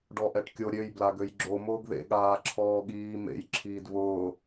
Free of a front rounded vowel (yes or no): no